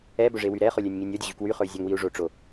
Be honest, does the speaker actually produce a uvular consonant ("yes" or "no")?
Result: yes